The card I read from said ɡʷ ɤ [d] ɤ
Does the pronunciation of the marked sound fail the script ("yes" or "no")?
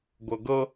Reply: yes